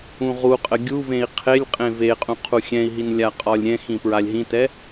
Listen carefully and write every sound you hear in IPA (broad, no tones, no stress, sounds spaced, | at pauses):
ũ ʁ u qʼ ə ɡʲ u v ẽ i̯ qʰ e lʲ qʼ ẽ v e qʼ ũ qʰ u xʲ ɛ̃ i̯ ɦ i n lʲ a qʼ ɒ lʲ ɾʲ ɛ̃ x ĩ p ɹ a lʲ ɦ ĩ t ɛ